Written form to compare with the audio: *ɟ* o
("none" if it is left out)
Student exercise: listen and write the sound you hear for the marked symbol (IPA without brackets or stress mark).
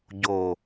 ɟ